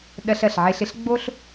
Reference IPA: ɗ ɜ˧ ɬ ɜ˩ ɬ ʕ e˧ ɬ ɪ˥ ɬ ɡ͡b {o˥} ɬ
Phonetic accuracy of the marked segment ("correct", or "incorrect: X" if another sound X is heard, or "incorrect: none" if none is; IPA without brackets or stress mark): correct